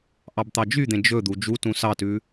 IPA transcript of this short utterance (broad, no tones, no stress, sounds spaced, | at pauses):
ʔ ɑ b t̪ ɑ d͡ʒ y d̪ ẽ d͡ʒ ɵ d̪ u d͡ʒ u t ũ s ɑ t ʉ